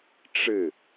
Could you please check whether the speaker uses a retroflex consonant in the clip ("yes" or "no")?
yes